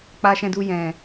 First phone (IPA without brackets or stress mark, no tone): k͡p